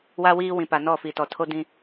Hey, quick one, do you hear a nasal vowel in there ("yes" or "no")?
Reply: yes